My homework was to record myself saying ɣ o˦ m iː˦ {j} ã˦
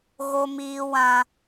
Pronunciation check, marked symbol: incorrect: w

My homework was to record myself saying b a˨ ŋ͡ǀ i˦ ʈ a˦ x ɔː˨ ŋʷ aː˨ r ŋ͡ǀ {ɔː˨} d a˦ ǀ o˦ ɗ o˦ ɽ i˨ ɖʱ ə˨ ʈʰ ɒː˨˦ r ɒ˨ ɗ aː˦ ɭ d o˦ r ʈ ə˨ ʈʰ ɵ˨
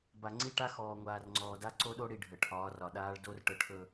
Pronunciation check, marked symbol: correct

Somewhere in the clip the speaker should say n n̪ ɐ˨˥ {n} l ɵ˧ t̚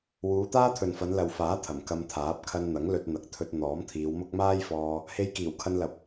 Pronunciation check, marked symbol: incorrect: ŋ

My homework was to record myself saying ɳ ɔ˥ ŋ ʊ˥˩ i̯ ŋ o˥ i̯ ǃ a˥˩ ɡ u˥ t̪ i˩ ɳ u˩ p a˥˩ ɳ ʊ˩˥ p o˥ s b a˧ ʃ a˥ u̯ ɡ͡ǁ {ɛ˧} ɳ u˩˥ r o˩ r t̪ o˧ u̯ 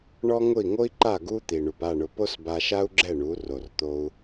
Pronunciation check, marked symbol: incorrect: ɛ˥˩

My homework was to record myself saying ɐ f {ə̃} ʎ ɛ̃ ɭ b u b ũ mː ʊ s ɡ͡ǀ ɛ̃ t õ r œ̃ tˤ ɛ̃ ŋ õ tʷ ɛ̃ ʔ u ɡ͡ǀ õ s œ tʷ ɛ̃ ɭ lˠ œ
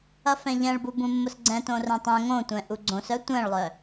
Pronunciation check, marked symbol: incorrect: ɛ̃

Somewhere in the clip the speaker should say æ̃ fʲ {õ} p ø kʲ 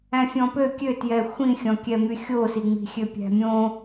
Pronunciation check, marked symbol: incorrect: ɔ̃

